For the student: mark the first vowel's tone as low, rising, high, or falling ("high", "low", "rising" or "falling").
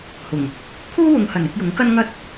low